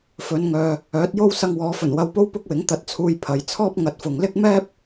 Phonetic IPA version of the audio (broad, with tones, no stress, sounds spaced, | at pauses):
f ɵ˨˧ n ŋ œː˨ | œː˨˥ t̚ j o˥ w s ɐ˧ ŋ w ɔː˨˧ f ɵ˨˩ n w ɐ˧ w p o˥ w p ʊ˥ k̚ w ɪ˨˥ ŋ t̪ ɐ˧ t̚ t͡sʰ uː˧ j pʰ ɐ˨ j t͡sʰ ɔː˥ p̚ ŋ ɐ˨ t̚ f ʊ˨ ŋ l ɪ˥ k̚ m ɛː˥ p̚